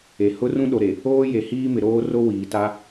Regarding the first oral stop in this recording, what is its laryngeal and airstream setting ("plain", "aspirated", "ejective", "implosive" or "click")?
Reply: implosive